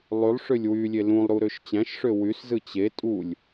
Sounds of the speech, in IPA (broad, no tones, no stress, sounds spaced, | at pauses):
lˠ y lˠ ʂ ø lʲ w y lʲ e l ũ lˠ ɾ u ɾ ø ʃ t͡ɕ æ̃ ʃ ʂ ø w y s z ɯ t͡ɕ e tʼ u lʲ